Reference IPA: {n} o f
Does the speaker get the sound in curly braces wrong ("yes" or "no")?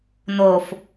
no